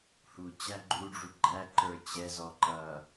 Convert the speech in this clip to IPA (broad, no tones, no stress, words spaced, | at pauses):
hu t͡ɕæɡ͡ǃuɖ͡ʐu ɡ͡ǃæ ǃə˞t͡ɕɛzɔ ǃʌ